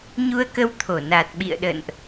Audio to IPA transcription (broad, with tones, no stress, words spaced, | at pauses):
ɲu˧ə̯kə˧wt̪ʰo˧˩ naː˨˩t̚ɓḭ˧˨ə̯ ɗə̰ː˧˨nʔ